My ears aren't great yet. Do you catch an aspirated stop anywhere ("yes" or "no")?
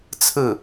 yes